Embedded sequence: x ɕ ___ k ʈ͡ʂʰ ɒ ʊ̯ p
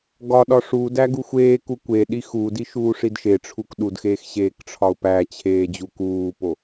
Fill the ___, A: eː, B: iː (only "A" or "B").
A